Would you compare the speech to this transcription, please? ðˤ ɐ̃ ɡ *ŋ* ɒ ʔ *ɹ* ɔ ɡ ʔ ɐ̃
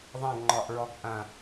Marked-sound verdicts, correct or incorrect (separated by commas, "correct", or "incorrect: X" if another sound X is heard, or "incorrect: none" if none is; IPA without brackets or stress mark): incorrect: ŋ͡ǃ, correct